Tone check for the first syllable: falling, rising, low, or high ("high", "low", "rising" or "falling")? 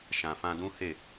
low